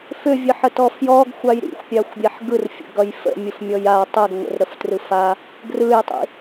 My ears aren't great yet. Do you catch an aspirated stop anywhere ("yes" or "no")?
no